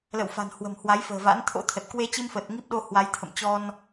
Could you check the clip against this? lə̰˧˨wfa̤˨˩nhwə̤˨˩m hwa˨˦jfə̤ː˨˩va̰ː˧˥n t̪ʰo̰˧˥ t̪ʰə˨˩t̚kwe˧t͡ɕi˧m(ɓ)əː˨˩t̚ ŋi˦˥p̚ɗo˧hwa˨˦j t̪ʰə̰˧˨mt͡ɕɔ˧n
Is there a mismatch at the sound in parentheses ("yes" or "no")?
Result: yes